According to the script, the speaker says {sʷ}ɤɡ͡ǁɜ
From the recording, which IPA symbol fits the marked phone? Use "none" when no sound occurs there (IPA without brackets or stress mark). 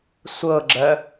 sʷ